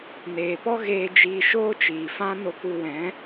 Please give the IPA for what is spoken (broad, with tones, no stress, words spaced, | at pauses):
neː˨pɔ˦ɣeː˧ d͡ʒiː˧ʃoː˦t͡ʃiː˨fã˦ no˧ku˧wɛ̃˨˦